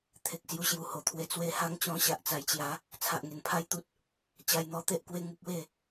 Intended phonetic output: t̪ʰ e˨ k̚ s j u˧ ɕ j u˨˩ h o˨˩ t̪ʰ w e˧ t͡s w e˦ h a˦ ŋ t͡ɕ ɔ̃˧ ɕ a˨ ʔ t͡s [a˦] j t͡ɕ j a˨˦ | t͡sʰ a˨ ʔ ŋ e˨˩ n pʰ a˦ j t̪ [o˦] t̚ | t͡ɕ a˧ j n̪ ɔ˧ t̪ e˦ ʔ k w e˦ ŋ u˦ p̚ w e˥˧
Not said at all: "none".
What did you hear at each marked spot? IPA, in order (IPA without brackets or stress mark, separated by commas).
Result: a˨˩, u˦